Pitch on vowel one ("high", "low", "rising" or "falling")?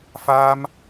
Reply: high